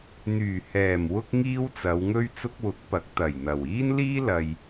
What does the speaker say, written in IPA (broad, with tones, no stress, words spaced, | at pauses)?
n̪yː˨˩ hɛː˨˩m wʊ˥k̚ŋiː˥wt͡sɐ˨˧wŋɵ˥ɥ t͡sʊ˥k̚wʊ˨˥k̚pɐ˨˥k̚ t̪ɐ˨˩jn̪ɐ˨˩w iː˥nliː˥lɐ˨j